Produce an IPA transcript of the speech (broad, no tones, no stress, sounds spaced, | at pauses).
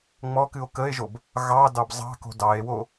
ŋ͡m ɔ k ɨ o̯ k ə e̯ ʒ o b | ɣ ɑ d ɑ b zˤ ɑ̤ k o̤ d ɑ e̯ w o